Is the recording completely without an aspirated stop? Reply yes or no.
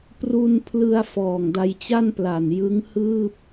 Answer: no